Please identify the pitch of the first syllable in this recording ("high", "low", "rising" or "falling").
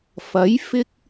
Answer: rising